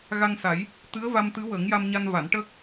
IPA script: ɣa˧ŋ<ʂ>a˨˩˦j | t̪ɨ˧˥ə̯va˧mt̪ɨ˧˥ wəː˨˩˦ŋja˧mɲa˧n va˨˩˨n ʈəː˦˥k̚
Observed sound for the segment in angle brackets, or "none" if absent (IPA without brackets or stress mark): s